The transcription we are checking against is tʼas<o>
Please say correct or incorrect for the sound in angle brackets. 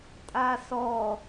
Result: incorrect